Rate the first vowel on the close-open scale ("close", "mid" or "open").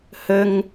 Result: mid